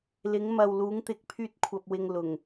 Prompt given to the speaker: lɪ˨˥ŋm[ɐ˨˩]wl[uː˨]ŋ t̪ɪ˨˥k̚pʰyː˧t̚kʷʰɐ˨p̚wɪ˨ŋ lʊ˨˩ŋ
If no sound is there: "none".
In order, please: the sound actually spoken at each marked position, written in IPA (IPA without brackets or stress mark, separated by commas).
ɐ˨, uː˨˥